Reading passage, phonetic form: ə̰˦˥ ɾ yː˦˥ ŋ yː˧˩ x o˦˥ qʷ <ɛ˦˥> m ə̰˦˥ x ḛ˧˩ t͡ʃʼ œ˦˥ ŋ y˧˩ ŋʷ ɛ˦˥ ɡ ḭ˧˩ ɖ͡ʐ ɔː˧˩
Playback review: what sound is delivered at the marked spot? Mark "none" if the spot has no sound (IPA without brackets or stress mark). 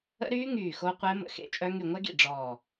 ɛ˦˥